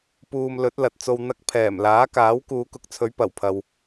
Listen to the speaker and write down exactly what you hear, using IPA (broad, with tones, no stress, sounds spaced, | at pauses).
p uː˨ m l ɵ˨˥ t̚ l ɐ˨ t̚ t͡s o˧ w n̪ ɐ˧ k̚ pʰ ɛː˨˩ m l aː˨˥ k aː˨˥ w k uː˨˧ k ʊ˨˥ k̚ t͡sʰ ɵ˨˥ ɥ p ɐ˨˩ w pʰ ɐ˨ w